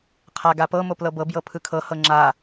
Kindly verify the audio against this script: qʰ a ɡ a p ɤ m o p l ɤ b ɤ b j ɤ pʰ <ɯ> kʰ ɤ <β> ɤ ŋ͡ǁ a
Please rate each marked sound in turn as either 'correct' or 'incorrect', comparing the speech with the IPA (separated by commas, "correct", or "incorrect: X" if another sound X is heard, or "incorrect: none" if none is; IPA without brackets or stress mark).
correct, incorrect: h